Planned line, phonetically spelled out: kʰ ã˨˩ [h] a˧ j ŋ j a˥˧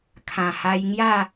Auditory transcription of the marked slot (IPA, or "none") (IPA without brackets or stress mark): h